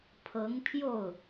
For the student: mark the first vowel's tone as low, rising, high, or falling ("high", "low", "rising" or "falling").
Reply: rising